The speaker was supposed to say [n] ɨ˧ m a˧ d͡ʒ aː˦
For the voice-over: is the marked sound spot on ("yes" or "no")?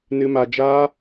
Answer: yes